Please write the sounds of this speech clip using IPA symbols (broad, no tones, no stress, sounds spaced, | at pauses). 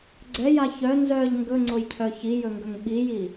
ɡ͡ǀ ɛ j a ç œ n z œ ʎ ŋ ɡ ɵ ŋ͡ǀ o j cʰ œ ç i j ɵ ŋ ɡ ɵ ŋ ɓ i j i